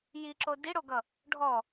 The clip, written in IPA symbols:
j i ǁ o d i ɽ o ɡ ʌ | ɖʱ ɔ

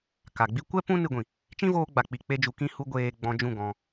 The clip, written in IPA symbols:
k a˨ ɡ͡b i˦ kʷ ɛ˦ p ũ˦ n ɨ˧ ɡʷ ĩ˨ | t͡ʃ ĩ˦ v oː˧ ɡ͡b a˨ k͡p i˨ k͡p e˧ d͡ʒ u˨ k ĩ˦˨ h u˦ ɡʷ eː˧ ɡ͡b ɔ̃˧ d͡ʒ ũ˦˨ ɡ ɔ̃˧

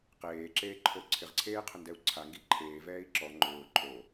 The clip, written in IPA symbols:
q eː ǁ eː ǃʰ o ǀʰ ɪ ʁ ǀʰ eː qʰ ʊ n d ɛ u̯ ǀʰ a ŋ ɡ i ǃʰ eː v ɛː i̯ ǁ ɔ ŋ͡ǃ ʊː ǃʼ o

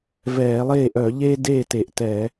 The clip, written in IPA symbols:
v ɛː˧˩˧ lˠ eː˥˩ ʔ œ˧˩˧ ʎ eː˦ d eː˥˩ t e˨˩ ʔ t ɛ˧˩˧

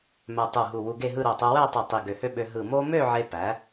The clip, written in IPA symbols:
m æ˧ tˤ u˧˩ ɦ u˧˩ w u˧ ɡ e˥˧ ɦ ɯ˥˧ ɾ o˧˩ tˤ u˧ w æ˥˧ tˤ i˧˩ tˤ i˧˩ ɡ ø˧˩ h ø˥˧ ɓ ø˧ ɦ ɯ˧˩ m o˥ m ø˥˧ ʕ e˧ p æ˩˧

